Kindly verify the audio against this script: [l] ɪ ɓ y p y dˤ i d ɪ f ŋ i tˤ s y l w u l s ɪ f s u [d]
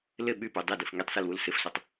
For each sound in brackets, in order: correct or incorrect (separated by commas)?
correct, incorrect